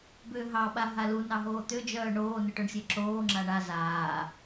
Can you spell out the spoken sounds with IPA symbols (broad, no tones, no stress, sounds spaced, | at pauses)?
b ʏː ɦ ɑ ɓ a ɦ a l u n ɑ ɦ oː t̪ ʏ d͡ʒ œː ɳ oː n ʏ ʈ œ ɳ sʲ e ǁ oː ŋ͡ǁ a ɳ a z aː